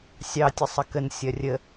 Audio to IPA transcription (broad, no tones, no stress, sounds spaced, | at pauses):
sʲ ɑ tʲ ə sˤ ə k ə n sʲ ɐ rʲ ə